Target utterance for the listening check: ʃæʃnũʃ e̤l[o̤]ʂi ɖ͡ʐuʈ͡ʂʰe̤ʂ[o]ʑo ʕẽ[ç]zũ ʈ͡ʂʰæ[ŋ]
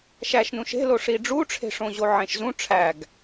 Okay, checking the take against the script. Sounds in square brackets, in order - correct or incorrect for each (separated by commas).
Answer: incorrect, incorrect, incorrect, incorrect